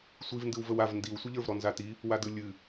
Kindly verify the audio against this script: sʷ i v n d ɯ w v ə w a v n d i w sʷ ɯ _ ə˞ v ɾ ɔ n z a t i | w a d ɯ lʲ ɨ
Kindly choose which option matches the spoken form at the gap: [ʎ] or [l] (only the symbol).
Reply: ʎ